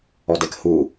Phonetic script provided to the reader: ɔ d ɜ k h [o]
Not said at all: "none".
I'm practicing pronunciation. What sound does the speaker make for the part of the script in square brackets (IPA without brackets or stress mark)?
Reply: u